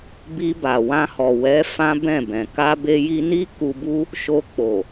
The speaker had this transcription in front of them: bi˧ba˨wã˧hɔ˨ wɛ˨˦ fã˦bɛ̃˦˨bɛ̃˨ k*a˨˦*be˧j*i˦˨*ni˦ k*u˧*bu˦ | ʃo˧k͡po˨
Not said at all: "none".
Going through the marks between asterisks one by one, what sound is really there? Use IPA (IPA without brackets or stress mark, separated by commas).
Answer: a˧, i˧, u˧